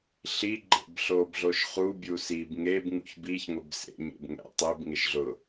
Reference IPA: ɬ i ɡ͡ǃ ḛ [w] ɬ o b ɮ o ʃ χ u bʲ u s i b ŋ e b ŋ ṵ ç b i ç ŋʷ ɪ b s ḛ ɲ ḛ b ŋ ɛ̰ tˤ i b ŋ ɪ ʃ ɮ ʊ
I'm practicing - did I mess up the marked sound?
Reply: yes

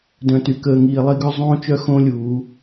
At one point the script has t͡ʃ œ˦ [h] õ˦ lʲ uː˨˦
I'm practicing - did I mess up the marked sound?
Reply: yes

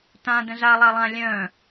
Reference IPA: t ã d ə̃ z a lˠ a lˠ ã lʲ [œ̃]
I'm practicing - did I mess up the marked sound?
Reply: no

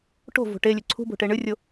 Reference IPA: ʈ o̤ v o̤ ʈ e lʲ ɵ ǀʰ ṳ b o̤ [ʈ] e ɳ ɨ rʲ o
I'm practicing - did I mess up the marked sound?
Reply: no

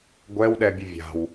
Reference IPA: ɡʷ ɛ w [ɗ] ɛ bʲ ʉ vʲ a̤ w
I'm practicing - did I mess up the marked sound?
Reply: no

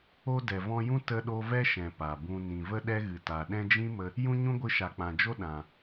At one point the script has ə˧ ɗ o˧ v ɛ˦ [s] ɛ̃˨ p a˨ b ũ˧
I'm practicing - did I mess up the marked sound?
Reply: yes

